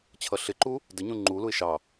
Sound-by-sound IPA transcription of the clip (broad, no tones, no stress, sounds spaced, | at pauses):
t͡ɕʰ ʌ ɬ ɪ ǃ u | d ə ɲ ũ ŋ͡ǃ u l u ɪ̯ ʃ ɑ